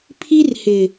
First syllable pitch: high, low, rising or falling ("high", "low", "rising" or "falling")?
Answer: high